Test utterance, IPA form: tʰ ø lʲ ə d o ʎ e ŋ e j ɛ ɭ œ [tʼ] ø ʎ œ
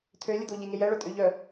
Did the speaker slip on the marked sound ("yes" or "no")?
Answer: no